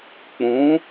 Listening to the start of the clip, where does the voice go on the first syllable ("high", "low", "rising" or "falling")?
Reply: rising